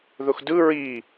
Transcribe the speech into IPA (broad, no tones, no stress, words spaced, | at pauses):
ðʊxdɯ ɹi